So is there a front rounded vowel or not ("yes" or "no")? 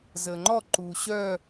yes